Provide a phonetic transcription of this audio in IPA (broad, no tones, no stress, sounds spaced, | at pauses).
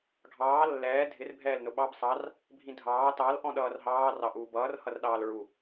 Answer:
ɡʱ ɑː lː ɛː dʱ ɪ r bʱ ɛː l n ʊ ɓ ɑ b sˤ ɑ r | bʱ ĩ dʱ ɑː t ɑ l ʔ ɔ̃ ɗ ʌː r ɦ ɑː r ɑ ʔ uː b ʌː r h ʌ r ɗ ɑː l ɹ u